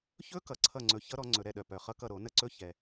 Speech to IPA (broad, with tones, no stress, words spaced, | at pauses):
çɵ˦˥ kʌ˧˩˧ǀʰʌ˦˨ŋ͡ǀɵ˨˦ çʌ˦˥ɾɔ˨˦ ŋ͡ǀɵ˧˩˧ɾɛ˦˨ɗœ˨˩ pœ˨˩χʌ˦˥kʌ˦˨ ɾo˧˩˧nə˦˨ǀɵ˦˥ çɛ˨˩